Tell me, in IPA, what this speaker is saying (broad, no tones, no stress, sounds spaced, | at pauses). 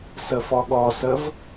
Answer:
s ə f ɔ ɠ ɔ s ə v